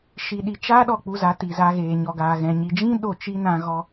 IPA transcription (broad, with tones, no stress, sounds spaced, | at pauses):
ʃ i˨ ɗ i˨ t͡ʃ aː˦ ɗ ɔ˦˨ k͡p u˧ z a˨˦ t i˨ z a˧ ɣ eː˨ ɲ ɔ˨ ɡ aː˨ ɣ ɛ̃˨ ɲ i˨ d͡ʒ ĩ˦ ɗ o˦˨ t͡ʃ i˦ n ã˧ ɣ ɔ˦